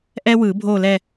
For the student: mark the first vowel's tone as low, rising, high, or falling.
high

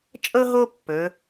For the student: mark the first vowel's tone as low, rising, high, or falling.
high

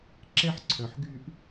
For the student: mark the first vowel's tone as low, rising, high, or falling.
falling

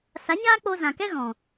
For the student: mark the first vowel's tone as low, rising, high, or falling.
rising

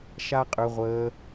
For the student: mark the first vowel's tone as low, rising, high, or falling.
high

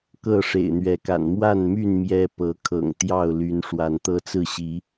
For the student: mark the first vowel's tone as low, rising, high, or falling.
falling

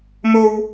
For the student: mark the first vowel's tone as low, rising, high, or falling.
high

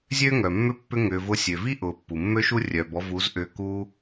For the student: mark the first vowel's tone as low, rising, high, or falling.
high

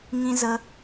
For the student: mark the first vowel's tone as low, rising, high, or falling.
high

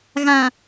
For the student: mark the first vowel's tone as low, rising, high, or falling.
low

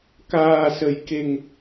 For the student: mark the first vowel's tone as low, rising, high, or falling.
low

